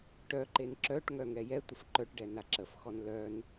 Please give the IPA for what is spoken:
ʈ œ ǃ e n ǁ œ ʈ ŋ œ ŋ ɛ j ɛ tʷ ə f ǃ œ ʈ ɖ ɛ n a ǁ ə f x ɔ n l œ n

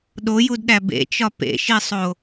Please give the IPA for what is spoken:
ɗ o j u d ɗ æ b ḛ t͡ʃ ɒ p ḛ ʃ i sˤ o

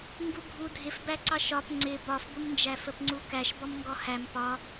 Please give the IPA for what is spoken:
ŋ ɡ u bʱ u dʱ ɪ f b æ ǀ ɑ ʃ ɒ p ŋ͡ǀ ɪ b ɒ f b ʊ m n d͡ʒ æ f ə p ŋ͡ǀ u k æ ʃ b ɔ m ŋ ɡ ɔ h æ m p ɒ

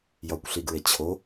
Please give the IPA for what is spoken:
j ɒ kʷ ɬ i ɡ ɹ e t͡ɕʰ o

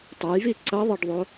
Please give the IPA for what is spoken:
tˤ ɤ j v i ǀ ʌ ðˤ ɤ ɖ ðˤ o

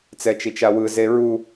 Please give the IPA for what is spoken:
t͡s ɛ t͡ʃ i t͡ʃ a w ɯ z e ɹ u

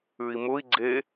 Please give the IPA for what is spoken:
ʉ i̯ m ʊ i̯ ɡ͡ǀ e

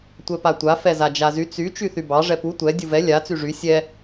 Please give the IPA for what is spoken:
tʷ ɛ p a tʷ a f ɛ z a d͡ʒ a z y t͡s y t͡ʃ y θ y b ɑ ʐ ɛ p u tʷ ɛ dʲ u v ɛ lʲ a t͡s y ʐ y sʲ ɛ

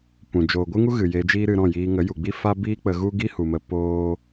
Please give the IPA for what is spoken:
p ũ˨ d͡ʒ oː˨ ɡʷ ɨ˦ ŋ u˦ ɣ ɨ˨ j e˧ d͡ʒ iː˦ ɾ ɨ˧ ɾ ɔ̃˦˨ j iː˧ ŋ ə˨˦ j u˨ ɡ͡b i˦ f a˦ b iː˦ k͡p ə˧ ɣ u˦ ɡ i˦ h u˨ m ə˧ p oː˦

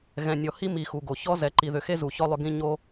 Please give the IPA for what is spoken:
ɣ ɛ̃˨ nʲ ɔ˨ h i˦ m i˨ x u˨ ɡ o˨ ç ɔ˦ z ɛ˨ ǃ i˨ ð ʏ˨ x e˦ z u˨ ç ɔ˦ lˠ ʏ˦ ɡ ĩ˦ ɲ o˦

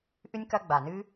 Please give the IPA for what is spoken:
ʔ ɨ˥ nʲ k ɐ˦ ɡ͡b a˨ n ɨ˥

